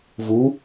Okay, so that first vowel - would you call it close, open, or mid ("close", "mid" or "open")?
close